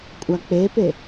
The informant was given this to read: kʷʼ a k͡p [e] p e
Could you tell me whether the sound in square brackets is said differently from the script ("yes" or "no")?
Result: no